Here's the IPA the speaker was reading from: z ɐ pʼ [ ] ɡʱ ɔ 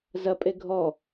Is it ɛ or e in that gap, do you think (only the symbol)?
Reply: e